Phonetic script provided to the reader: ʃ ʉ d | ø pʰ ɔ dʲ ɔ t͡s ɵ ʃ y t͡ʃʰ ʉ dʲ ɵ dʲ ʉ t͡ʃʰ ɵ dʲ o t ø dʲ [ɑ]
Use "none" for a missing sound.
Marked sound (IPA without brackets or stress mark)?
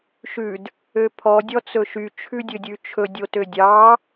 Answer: ɑ